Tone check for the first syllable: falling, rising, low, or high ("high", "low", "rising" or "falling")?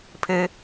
high